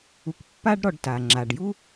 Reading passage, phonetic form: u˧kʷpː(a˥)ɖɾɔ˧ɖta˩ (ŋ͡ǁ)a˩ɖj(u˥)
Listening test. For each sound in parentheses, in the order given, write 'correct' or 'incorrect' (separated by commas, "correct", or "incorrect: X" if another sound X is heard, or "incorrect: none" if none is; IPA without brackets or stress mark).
correct, correct, correct